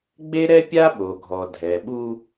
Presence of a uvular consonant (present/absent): absent